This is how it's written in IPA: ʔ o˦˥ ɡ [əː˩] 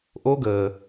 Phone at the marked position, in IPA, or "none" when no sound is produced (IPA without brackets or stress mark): əː˩